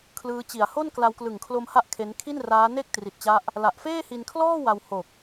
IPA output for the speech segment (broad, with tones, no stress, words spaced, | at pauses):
kʰlɯː˦˥t͡ɕi˨˩a̯ ho˥˩nkla˧wklɯ˨˩ŋkʰlo˧m ha˥˩ʔkʰe˦˥n kʰi˥˩nraː˦˥ ne˥˩k̚tri˨˩t̚t͡ɕa˦˥ʔ | la˨˩ʔfeː˥˩hi˧nkʰlɔː˥˩ wa˧who˨˩k̚